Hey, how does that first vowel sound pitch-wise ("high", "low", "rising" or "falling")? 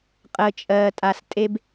low